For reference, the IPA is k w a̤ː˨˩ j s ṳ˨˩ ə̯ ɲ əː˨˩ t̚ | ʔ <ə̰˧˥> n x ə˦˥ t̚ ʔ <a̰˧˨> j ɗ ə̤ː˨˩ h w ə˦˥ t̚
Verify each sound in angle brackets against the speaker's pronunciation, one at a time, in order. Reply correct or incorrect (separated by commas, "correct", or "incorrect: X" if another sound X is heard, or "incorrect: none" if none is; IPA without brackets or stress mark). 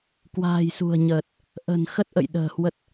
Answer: incorrect: ə̤˨˩, incorrect: ə̰˧˨